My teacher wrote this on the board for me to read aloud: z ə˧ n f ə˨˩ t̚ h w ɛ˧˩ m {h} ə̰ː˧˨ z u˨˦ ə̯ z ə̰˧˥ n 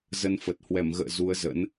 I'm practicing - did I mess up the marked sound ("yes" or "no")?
yes